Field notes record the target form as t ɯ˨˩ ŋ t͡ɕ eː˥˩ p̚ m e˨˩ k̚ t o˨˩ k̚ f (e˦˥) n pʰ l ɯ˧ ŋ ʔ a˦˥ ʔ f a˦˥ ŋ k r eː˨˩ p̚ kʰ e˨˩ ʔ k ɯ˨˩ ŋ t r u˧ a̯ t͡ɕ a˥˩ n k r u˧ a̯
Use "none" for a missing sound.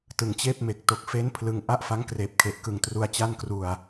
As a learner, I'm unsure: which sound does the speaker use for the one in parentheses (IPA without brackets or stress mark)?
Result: e˦˥